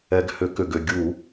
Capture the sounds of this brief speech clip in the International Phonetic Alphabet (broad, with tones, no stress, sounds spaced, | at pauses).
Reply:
ɛ˨˩ ɡ h ʏ˧˩˧ k ʏ˨˩ ɡ ʏ˥˩ ɡʲ u˧˩˧